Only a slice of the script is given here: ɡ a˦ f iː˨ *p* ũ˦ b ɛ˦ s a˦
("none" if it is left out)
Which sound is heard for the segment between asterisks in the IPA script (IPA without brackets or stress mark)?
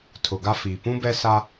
p